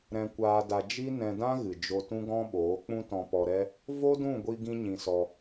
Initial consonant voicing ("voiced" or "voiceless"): voiced